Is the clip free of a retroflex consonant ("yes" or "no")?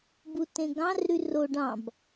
no